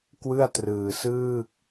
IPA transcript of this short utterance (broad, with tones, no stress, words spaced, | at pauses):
kwɯ˥˩a̯trɯː˧sɯː˥˩k̚